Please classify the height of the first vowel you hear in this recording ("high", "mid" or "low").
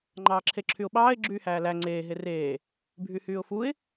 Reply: low